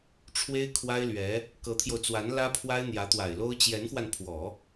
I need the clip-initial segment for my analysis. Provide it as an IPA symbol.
ʈ͡ʂʰ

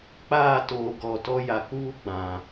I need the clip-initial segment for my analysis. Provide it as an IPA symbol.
k͡p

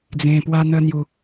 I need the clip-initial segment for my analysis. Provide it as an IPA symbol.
d͡z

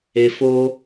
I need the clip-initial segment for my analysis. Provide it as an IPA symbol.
e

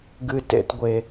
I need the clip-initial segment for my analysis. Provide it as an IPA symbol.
ɡ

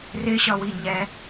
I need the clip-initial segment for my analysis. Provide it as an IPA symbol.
r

